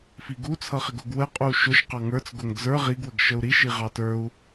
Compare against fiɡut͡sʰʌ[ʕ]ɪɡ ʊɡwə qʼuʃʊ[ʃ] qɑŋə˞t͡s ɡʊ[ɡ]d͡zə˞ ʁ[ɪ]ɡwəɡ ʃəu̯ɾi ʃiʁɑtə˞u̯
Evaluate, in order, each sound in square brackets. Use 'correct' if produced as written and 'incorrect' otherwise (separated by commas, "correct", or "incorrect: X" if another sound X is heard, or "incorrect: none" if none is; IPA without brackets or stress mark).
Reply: incorrect: χ, correct, incorrect: ŋ, incorrect: i